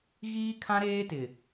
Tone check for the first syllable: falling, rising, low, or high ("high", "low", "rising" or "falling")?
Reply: high